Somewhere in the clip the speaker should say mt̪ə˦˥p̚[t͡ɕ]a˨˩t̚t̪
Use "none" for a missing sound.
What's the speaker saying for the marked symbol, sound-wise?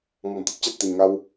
t͡ɕ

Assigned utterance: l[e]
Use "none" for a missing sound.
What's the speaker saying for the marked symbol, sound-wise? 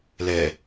ɛ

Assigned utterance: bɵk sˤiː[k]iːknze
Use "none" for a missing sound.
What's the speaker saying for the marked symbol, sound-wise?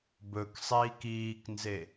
k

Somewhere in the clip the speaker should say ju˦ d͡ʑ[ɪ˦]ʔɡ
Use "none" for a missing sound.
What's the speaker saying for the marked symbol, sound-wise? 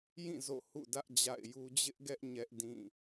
ɪ˦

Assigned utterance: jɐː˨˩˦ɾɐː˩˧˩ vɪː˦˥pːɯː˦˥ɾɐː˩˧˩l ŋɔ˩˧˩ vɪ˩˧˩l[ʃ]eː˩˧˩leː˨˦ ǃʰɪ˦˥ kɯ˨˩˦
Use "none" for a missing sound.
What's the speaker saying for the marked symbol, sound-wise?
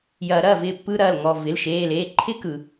ʃ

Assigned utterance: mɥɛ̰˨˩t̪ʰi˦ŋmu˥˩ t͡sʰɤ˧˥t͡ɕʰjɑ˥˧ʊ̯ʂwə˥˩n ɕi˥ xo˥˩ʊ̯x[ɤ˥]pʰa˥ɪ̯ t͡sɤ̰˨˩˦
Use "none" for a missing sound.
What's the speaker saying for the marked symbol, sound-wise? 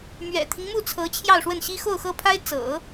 ɤ˥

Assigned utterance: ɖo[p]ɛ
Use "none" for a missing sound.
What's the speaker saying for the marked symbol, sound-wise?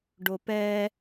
p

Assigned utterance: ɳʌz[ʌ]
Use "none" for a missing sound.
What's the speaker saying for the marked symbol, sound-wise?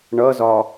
ɒ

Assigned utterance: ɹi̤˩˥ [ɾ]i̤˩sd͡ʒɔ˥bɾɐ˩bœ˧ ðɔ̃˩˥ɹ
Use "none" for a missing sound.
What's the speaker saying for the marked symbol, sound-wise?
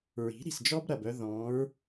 ɾ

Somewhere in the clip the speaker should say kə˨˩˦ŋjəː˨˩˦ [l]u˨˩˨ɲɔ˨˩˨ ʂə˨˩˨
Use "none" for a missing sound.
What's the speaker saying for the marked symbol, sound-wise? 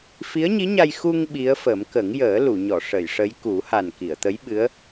l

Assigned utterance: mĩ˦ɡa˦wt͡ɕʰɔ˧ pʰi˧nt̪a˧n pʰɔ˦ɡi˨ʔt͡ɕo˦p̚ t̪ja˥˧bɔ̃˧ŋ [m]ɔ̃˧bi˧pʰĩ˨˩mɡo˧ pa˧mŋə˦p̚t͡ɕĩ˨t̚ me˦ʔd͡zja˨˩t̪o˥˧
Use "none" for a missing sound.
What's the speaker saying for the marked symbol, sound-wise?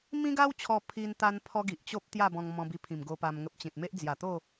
m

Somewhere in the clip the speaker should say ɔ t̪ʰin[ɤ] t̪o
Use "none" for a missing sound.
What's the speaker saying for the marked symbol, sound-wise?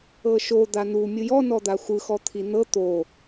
ɤ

